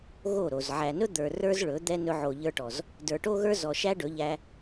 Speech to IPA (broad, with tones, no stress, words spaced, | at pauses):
ɣo˦˨ɾo˨z ʕæ˨nɵ˦d̪ə˞˨ rə˞˦z ɭɵ˨˦d̪ɛ˦ nɵ˧ʕo˨ʎə˞˧ʈɔ˨z | də˞˨ʈo˦ɣə˞˦ zɔ˨ʃæ˦ɖɵ˨˦ʎæ˧